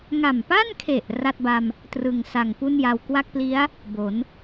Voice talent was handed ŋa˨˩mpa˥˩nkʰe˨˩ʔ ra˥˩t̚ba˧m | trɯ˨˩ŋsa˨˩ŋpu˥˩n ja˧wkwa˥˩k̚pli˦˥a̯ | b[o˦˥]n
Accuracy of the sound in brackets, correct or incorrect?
incorrect: o˩˦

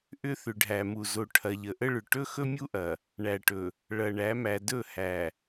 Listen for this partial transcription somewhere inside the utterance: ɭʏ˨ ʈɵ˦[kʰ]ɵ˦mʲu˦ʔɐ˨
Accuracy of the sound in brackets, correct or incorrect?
incorrect: x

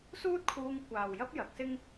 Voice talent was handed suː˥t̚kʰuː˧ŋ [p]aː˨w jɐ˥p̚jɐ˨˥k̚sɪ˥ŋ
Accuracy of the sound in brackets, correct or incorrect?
incorrect: kʷ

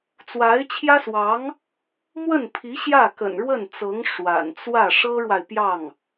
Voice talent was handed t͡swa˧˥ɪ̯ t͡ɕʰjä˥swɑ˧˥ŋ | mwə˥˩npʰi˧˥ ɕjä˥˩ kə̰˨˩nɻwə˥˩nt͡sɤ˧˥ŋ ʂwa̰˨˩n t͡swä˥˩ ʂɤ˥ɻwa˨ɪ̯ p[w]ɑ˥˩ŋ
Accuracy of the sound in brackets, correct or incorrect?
incorrect: j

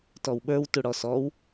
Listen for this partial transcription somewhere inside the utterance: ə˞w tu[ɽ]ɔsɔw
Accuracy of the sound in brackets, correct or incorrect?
correct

